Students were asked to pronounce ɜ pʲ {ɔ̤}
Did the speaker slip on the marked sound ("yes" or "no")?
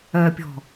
no